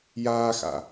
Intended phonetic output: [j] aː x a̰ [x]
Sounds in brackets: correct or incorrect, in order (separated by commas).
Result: correct, incorrect